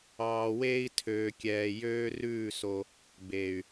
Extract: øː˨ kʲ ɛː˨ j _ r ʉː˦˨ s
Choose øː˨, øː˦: øː˦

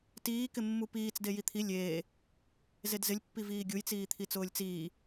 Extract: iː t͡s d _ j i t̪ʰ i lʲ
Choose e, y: e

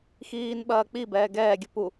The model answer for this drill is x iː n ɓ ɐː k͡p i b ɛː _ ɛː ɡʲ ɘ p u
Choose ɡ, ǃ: ɡ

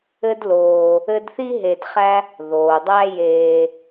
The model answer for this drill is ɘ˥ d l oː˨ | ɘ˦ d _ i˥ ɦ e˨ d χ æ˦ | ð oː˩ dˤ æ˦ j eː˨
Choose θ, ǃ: θ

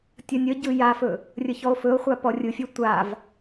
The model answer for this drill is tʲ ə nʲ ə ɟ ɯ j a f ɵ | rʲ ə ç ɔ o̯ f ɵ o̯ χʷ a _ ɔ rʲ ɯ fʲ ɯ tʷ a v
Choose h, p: p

